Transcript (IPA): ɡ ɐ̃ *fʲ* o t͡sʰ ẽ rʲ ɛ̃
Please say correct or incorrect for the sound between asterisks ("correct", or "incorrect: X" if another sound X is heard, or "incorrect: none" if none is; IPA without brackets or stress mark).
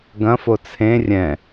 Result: incorrect: f